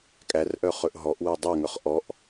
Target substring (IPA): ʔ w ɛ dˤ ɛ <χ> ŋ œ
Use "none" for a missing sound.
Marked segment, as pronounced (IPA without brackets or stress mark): none